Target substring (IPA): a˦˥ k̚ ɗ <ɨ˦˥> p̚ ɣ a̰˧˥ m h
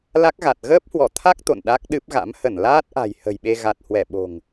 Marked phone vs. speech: correct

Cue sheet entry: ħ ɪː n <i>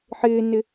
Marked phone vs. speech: incorrect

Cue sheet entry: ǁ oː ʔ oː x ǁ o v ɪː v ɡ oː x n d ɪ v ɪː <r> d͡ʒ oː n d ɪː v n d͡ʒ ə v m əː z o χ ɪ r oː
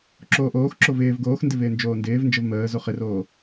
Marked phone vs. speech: incorrect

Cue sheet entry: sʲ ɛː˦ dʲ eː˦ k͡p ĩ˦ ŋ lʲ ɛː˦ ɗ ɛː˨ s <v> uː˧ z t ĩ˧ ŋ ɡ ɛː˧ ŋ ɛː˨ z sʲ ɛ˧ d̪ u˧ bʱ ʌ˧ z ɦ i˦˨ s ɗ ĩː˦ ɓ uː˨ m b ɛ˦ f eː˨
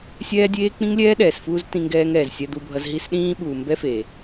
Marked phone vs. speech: incorrect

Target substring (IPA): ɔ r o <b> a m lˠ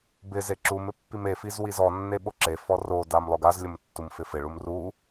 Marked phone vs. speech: incorrect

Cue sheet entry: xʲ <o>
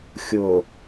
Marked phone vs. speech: correct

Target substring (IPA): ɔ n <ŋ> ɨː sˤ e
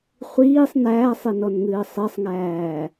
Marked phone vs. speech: correct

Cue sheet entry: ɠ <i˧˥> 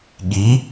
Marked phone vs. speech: incorrect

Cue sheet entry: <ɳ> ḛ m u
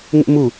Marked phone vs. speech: incorrect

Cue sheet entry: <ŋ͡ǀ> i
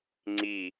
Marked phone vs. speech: correct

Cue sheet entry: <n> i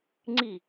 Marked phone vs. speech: incorrect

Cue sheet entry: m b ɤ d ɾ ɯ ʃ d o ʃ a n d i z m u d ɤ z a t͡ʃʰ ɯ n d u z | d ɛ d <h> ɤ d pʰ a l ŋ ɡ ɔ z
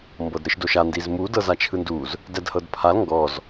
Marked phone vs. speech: correct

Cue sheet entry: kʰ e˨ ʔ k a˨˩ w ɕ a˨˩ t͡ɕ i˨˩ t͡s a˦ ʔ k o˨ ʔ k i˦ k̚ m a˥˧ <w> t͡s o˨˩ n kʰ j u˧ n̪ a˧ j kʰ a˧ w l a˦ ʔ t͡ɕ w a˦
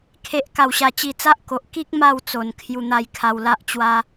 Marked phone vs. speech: correct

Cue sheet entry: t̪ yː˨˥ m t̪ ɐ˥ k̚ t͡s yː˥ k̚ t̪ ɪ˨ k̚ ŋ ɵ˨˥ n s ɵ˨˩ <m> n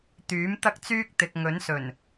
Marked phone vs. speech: incorrect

